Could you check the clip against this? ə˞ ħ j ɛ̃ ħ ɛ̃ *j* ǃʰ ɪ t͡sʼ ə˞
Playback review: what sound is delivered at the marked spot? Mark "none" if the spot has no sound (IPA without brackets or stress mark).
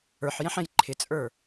j